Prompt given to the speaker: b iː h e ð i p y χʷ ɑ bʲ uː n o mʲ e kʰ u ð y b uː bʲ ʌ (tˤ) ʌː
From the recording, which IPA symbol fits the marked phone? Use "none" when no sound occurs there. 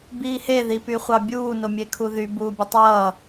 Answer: tˤ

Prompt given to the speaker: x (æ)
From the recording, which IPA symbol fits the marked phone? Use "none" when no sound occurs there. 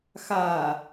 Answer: a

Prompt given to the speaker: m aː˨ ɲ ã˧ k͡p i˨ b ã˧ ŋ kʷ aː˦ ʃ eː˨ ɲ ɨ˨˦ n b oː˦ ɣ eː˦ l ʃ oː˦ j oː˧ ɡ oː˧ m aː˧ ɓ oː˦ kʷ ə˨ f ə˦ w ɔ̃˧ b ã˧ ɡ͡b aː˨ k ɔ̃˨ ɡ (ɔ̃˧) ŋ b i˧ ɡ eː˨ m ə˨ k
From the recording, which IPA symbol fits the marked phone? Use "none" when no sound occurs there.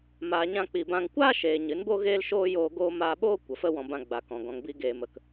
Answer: ɔ̃˨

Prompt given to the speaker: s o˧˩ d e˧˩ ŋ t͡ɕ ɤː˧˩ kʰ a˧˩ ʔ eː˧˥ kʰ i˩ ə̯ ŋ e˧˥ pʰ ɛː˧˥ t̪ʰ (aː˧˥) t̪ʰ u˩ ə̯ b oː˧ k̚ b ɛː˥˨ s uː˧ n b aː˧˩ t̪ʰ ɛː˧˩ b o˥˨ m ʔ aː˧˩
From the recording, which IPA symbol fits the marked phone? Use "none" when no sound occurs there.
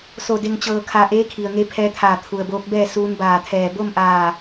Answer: aː˧˩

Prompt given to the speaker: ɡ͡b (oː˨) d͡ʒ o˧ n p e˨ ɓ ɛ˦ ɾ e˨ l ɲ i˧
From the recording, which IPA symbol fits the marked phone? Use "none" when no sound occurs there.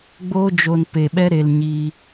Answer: oː˦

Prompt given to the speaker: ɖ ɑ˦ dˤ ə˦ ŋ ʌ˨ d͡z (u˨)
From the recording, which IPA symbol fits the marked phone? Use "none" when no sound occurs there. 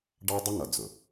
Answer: ʊ˨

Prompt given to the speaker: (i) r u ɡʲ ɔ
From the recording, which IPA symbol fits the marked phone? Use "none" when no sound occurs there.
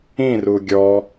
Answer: ĩ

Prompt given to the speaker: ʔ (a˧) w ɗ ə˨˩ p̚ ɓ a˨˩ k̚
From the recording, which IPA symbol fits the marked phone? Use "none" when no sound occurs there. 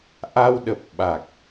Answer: a˧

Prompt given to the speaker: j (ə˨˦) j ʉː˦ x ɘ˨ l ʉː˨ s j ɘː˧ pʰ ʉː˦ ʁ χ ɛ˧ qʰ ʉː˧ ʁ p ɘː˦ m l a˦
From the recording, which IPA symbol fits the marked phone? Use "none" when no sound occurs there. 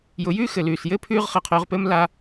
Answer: ʊ˨˦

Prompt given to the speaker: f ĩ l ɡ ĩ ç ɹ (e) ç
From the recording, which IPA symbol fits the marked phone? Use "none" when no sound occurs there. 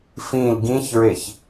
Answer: e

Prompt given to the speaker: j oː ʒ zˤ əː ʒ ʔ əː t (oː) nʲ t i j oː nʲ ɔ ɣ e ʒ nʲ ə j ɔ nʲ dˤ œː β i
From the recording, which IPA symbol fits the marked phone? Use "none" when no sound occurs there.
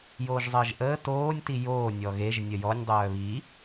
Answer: oː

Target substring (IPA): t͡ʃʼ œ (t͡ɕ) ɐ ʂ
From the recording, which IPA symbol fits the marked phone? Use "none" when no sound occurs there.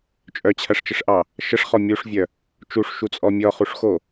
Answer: t͡ɕʰ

